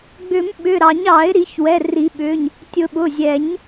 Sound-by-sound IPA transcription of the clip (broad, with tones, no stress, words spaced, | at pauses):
ɡ͡bʏ˨˩˦m ɓʏ˩˧˩ɾɑ˨˩˦ɲɑ˨˩˦ɪ̯ ɾi˨˩˦çwɛ˩˧˩ri˨˩˦ɓʏ˩˧˩ɲ | tʲʊ˨˩˦ɓʊ˩˧˩zʲɛ˨˩˦ɲ